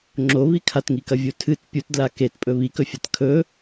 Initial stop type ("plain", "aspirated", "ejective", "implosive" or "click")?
click